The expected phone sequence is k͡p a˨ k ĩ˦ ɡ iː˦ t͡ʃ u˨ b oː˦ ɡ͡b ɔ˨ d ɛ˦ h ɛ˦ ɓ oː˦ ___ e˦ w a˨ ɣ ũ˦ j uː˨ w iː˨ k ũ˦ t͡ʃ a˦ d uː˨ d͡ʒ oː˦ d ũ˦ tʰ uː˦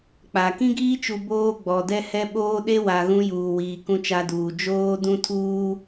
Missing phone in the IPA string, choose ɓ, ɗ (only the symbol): ɗ